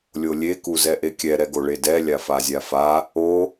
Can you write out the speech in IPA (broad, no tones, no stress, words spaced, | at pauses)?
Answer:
lʲolʲe kuzɛʔekʲɛ ɾɛɡoɭedɛ lʲafazʲafa | o